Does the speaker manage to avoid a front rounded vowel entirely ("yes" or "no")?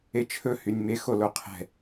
no